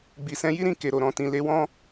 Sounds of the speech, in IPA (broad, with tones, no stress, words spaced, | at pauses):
ɡ͡bi˨sɛ̃˨˦ji˦ɾĩ˧ ke˨ɾo˨ɾɔ̃˨ tĩ˨le˨˦wɔ̃˦